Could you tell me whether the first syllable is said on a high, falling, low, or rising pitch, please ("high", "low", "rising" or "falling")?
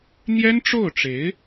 high